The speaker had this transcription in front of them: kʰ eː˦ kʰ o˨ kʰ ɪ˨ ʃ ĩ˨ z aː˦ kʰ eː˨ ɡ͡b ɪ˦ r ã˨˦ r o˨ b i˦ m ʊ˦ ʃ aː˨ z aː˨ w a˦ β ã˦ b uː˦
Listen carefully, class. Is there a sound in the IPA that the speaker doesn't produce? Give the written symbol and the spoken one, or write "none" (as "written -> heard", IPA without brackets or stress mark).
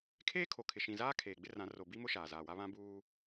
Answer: none